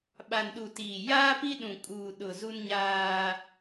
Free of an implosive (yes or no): no